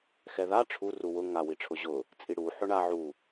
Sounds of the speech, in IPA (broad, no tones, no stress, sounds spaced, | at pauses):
x ɛ ð a ʈ͡ʂʰ u r u w ʊ ŋ a w i ʈ͡ʂʰ ʊ ʑ ʊ | t͡sʼ i ɽ u ħ ʊ ɳ a ʕ u